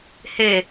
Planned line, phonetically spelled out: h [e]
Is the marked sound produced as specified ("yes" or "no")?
yes